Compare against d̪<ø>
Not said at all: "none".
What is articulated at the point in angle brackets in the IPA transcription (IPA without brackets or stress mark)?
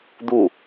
u